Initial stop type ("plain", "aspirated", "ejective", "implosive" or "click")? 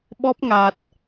implosive